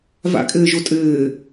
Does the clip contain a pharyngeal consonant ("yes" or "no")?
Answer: no